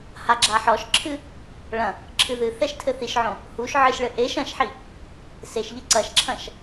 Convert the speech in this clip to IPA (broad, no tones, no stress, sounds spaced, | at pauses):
h a ɡ͡ǁ a ħ ɔ ʃ ǁʰ ɨ | ɭ ɐ̃ | ǁʰ ɨ ð ɨ θ ɛ ʃ tʰ ɘ θ i ʃ ʕ õ | h u ʃ ʕ ɨ ʃ ɭ ɘ ʔ e ʃ ɐ̃ ʃ ħ i | s e ʃ ʎ ɘ ǀ ɐ ʃ ǁʰ ɐ̃ ʃ